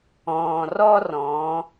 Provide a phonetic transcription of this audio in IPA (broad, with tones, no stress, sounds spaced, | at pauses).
ɔ̃ː˩ r ɔ˥ r ɔ̃˩˧